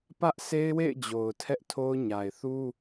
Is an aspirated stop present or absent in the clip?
present